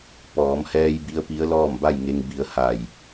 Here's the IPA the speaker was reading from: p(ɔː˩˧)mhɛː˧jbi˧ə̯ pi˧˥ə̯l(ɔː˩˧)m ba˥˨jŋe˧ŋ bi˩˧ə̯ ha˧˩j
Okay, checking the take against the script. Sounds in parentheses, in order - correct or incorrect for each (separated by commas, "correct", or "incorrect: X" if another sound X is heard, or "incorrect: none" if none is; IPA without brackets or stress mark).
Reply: correct, incorrect: ɔː˥˨